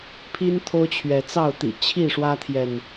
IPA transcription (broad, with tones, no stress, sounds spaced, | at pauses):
pʰ i˦ n t̪ʰ o˦ ʊ̯ t͡ɕʰ ɥ ɛ˨˦ t͡s ɑ˥˨ ʊ̯ t̪ ḭ˨˩ t͡ɕʰ i˥˨ ʂ w ä˦ t̪ʰ j ɛ˨ n